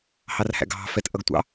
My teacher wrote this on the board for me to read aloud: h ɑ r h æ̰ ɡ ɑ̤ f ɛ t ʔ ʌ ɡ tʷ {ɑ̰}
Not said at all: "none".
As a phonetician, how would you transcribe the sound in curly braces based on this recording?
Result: ɑ̰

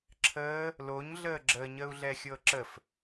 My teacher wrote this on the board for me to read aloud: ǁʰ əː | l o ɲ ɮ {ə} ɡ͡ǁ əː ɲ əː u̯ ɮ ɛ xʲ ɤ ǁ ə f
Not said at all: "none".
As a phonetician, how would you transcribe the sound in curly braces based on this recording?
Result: əː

